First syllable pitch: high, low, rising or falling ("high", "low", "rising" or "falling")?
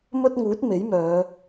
high